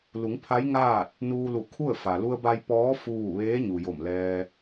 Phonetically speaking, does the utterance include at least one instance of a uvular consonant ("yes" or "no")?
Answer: no